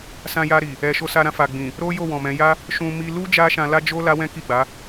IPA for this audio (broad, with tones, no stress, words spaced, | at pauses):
sã˧ja˧ɾi˨ | ɛ˨ ʃo˧sa˧ɾã˧ fa˨ɡ͡bĩ˨ | ɾo˦jo˦˨wɔ̃˨mɛ̃˨˦ ja˦ | ʃũ˧ mi˧lu˦ d͡ʒa˦ʃã˧la˦d͡ʒo˦ la˦wɛ̃˦ki˦˨ɡ͡ba˨˦